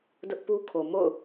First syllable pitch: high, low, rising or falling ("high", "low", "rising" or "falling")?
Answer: high